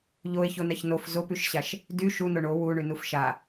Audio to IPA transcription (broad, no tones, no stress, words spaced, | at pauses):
ʎoe̯çonaç nof zopyʃɕaʃ | dy ʃuno ɳo wuɳynuf ʃa